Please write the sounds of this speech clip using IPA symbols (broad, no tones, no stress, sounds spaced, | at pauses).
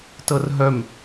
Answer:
t ɤ r ɦ œ m